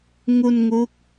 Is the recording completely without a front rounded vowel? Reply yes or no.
yes